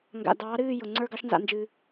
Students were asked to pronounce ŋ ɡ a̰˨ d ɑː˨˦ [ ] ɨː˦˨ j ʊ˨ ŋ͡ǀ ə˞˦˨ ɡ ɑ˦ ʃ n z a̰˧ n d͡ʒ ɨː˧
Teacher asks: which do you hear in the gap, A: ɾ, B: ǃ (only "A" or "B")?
A